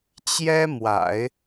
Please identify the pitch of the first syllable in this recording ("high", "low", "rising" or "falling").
high